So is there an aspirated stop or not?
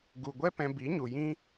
no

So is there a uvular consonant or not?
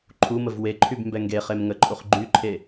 yes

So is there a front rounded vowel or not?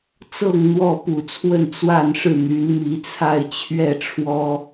yes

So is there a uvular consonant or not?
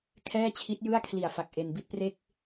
no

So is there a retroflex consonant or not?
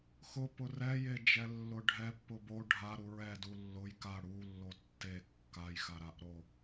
yes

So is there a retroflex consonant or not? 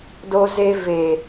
no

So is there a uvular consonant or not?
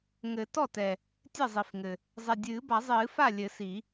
no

